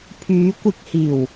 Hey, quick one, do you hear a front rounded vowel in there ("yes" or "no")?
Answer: yes